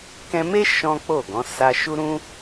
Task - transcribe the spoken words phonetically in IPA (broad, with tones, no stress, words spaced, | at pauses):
kɛ̃˧me˦ ʃɔ̃˦k͡po˦˨ɡɔ̃˨˦ sa˧ ʃu˦ɾũ˦